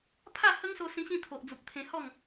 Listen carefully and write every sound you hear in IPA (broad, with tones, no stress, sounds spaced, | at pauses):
pʰ a˥˧ h ə˦ ŋ s o˧ s ĩ˧ ɕ ĩ˧ t̪ʰ o˨ ʔ d͡z u˨ p̚ t̪ʰ ẽ˧ h ɔ˥˧ ŋ